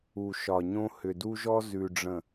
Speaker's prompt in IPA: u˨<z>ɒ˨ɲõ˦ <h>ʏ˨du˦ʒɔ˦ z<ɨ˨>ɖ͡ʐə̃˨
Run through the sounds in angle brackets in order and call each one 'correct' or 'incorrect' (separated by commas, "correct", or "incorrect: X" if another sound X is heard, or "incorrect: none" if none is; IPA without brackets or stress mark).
incorrect: ʃ, correct, incorrect: ʉ˨